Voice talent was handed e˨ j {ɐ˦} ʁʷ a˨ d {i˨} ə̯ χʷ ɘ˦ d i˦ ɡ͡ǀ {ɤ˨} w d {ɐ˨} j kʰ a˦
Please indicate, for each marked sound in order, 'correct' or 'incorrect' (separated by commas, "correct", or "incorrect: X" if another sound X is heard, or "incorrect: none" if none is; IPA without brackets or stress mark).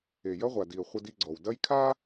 correct, correct, incorrect: ɔ˨, incorrect: ɐ˦